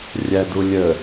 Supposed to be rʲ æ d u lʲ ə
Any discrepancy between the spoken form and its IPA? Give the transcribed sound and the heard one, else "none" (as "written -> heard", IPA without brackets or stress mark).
none